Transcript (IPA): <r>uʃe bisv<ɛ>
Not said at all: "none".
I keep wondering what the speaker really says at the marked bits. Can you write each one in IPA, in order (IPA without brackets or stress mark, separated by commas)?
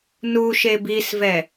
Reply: n, ɛ